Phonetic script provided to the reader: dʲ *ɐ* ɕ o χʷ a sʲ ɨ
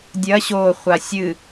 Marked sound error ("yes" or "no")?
no